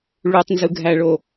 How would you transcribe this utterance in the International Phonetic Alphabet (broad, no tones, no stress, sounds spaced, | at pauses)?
ɭ u tˤ n z ɯ ɡʱ æ ɭ o